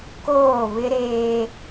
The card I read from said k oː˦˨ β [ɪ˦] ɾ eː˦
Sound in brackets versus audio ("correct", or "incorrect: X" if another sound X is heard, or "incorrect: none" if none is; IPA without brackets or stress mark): correct